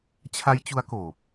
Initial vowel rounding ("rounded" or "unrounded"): unrounded